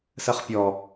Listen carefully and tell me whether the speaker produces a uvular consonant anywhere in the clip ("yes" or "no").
yes